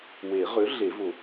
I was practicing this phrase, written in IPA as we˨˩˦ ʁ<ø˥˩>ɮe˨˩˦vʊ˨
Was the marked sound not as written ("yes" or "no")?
yes